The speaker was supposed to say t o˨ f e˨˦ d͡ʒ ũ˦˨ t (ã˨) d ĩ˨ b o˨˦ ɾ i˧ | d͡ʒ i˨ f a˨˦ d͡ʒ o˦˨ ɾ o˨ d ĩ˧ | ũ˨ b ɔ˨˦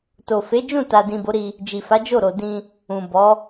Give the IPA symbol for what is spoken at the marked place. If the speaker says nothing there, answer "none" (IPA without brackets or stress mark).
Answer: a˨